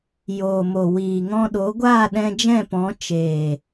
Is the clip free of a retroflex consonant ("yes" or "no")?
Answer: yes